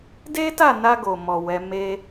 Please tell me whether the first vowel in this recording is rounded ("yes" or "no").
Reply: no